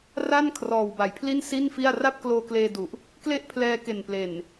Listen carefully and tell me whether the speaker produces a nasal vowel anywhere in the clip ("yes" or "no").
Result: no